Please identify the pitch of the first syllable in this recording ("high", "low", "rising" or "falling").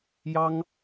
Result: high